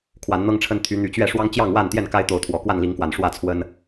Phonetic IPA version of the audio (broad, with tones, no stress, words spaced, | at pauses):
kʰwa˨˦nn̪ɤ˦ŋʈ͡ʂʰə˦n t̪ʰy˨˦ n̪y˨˦t͡ɕɥɛ˥˨ ʂwɑ˦ŋt͡ɕjɑ˥˨ŋwa˥˨nt̪jɛ˥˨n ka˦ɪ̯t̪o˨˦ʊ̯ t̪ʰwɔ˨˩kwa˥˨nli˨˦ŋkwa˨˩n ʂwä˥˨t͡sʰwə˦n